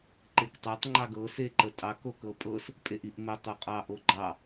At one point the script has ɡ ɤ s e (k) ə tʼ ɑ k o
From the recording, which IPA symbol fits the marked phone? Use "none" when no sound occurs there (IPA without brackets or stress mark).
ǃ